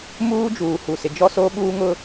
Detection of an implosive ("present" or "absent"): present